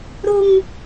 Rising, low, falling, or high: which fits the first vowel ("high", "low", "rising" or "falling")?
high